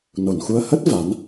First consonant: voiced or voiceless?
voiced